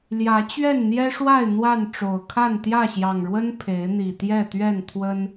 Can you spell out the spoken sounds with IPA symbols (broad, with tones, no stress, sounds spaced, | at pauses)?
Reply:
l j ä˨˦ t͡ɕ ɥ ɛ˥˨ n n̪ j ɛ˦ ʂ w a˥˨ ɪ̯ n̪ w a˥˨ n ʈ͡ʂ o˨˩ ʊ̯ kʰ a˥˨ n t̪ j ä˥˨ ɕ j ɑ˨˩ ŋ ɻ w ə˦ n pʰ e˨˦ ɪ̯ n̪ i˨˩ t̪ j ɛ˥˨ t̪ ɥ ɛ˥˨ n t̪ʰ w ə˦ n